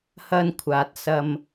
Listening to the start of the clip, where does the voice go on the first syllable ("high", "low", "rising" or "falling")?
high